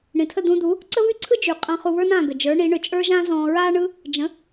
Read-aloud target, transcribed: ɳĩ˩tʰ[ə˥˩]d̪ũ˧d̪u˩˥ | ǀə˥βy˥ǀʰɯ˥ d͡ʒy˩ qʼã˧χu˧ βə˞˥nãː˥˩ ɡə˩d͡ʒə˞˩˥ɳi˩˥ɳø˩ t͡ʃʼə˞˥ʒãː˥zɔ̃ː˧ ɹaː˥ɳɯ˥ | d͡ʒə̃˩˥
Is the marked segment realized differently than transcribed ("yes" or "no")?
no